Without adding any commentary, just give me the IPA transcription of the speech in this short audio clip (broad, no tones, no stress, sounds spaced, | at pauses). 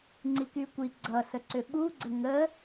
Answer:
ŋ͡ǀ i k y kʷ i ɡ͡ǀ ʌ s ə ǀ ʏ ɓ u ɡ͡ǀ ə ŋ ə